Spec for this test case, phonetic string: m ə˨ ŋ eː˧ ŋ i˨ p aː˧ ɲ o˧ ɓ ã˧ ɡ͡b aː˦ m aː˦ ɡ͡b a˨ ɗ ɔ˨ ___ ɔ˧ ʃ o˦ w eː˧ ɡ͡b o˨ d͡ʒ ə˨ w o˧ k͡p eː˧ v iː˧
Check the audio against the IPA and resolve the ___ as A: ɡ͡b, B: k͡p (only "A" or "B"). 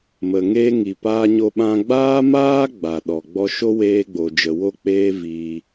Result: A